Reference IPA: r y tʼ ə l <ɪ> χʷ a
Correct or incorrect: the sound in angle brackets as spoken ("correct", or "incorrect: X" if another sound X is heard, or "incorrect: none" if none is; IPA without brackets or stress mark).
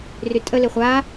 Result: correct